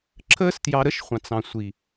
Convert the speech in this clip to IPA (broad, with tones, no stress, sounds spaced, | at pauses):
ǁʰ əː˦ s t j ɑ˧ ɾ ə˦ ʃ χʷ ɑ̃˨ t͡s ɑ̃˨ sʷ i˨